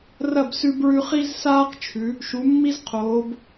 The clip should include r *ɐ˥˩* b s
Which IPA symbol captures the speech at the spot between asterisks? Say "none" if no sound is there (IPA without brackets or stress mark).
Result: ɐ˥˩